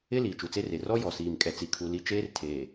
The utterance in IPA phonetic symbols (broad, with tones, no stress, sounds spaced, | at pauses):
ɪ˦ l iː˨ t͡ʃ u˨ t͡s e˦ r e˨ r ɔ˦ j ɔ˨ s iː˨ m kʼ ɛ˨ t͡s i˨ kʰ u˨ l i˦ t͡ʃ eː˦ r tʰ eː˨